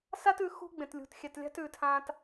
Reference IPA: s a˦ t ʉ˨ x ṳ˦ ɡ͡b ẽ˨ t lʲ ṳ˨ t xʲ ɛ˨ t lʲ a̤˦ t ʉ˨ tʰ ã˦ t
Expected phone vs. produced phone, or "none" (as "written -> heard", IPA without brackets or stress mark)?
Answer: none